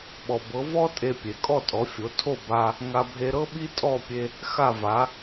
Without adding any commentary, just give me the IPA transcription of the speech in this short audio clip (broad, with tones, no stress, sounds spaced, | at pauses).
ɓ ɔ˩ b ɤ˩˥ v ɔ˥ tʼ e˧ pʲ e˩ kʼ ɔ˥˩ tʼ ɔ˩˥ fʲ o˩˥ tʰ o˥˩ b a˧ | ŋ a˧ bʱ e˧ ɾ ɤ˥ ɓ i˥ tʼ ɔ˥˩ pʲ e˧ | x a˥˩ v a˩˥